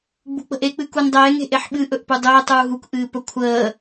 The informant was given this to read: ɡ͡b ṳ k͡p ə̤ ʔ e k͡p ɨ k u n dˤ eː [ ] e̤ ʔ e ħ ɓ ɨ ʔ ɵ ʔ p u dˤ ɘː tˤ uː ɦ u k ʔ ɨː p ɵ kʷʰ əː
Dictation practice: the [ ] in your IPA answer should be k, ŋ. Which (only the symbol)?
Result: ŋ